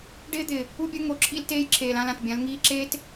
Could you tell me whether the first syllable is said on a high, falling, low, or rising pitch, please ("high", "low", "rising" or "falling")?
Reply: high